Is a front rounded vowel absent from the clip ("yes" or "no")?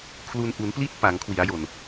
yes